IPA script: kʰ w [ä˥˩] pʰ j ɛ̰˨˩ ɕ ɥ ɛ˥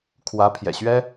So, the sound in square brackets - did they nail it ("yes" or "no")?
no